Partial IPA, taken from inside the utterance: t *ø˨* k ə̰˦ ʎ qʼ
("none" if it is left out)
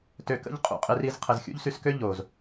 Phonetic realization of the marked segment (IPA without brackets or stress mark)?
ø˨